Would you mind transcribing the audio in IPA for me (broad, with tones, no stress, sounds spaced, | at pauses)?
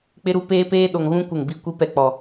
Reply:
k͡p ɪ˦ ɾ u˦ p eː˦ p eː˦ ɗ o˨ ŋ ɣ ũ˦ kʷ ɪ˦˨ ŋ b i˦ kʷ i˦ p ɛ˦ k͡p ɔ˨